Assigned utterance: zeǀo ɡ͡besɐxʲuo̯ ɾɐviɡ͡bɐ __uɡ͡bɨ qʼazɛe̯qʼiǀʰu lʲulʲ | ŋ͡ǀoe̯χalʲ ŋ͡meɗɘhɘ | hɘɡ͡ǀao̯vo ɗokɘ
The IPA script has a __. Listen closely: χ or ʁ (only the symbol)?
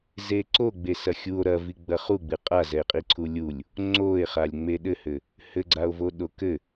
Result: χ